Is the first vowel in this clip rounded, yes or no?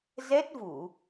no